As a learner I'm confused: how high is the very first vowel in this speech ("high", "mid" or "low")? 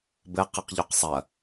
mid